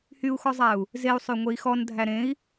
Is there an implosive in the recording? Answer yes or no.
no